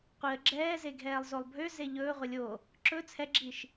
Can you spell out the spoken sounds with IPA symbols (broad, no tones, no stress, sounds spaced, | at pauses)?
qʷ i ə̯ ɡ͡ǁ ɛː z e ɡʱ ɛː lˠ z o lˠ bʱ ø z e ʎ ɵː ʁʷ ɛ lʲ o | ǁ ɵ t͡sʰ ɛ ɡ͡ǁ i ʃ